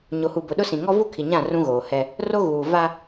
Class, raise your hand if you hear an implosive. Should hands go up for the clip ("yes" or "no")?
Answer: yes